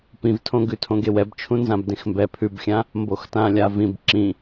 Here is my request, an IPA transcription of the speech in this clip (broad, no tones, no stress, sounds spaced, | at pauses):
p ĩ v tʰ õ ɡ ʉ tʰ õ ɡ e w ɛ b t͡ʃʰ ũ n z ã b d ẽ x m b ɛ pʰ ʉ b xʲ ã | m b o x t ã lʲ a v ĩ b ǁ ĩ